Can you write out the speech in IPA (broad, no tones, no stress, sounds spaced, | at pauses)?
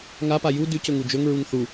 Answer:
ŋ a p a j u d ʉ c ɵ ŋ u d͡ʒ ɵ ŋ ɹ u ŋ θ u